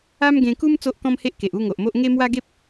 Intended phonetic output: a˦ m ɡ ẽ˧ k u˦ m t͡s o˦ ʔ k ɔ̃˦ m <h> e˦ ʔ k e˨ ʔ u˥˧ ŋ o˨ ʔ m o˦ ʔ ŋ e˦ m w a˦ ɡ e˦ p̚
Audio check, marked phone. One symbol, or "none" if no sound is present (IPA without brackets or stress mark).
h